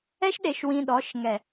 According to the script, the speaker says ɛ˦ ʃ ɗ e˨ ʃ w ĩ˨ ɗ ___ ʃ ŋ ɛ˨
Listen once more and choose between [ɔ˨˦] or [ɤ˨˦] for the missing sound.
ɔ˨˦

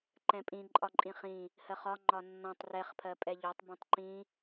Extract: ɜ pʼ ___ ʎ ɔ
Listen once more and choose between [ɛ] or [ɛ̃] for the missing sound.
ɛ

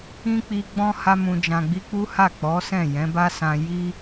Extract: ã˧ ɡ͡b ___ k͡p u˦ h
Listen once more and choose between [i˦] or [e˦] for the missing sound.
i˦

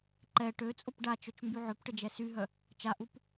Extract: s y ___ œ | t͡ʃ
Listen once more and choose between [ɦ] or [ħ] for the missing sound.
ɦ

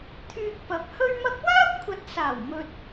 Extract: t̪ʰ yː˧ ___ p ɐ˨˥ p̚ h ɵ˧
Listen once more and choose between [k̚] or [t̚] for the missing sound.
k̚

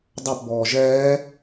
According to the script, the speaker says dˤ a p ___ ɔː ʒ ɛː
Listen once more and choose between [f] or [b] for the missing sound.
b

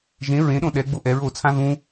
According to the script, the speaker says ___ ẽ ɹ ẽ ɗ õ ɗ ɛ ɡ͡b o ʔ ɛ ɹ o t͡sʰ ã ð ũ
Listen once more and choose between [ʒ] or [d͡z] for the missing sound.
ʒ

